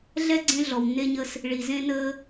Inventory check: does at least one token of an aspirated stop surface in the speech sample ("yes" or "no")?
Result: no